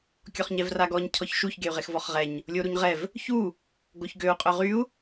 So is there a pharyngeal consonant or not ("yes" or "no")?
no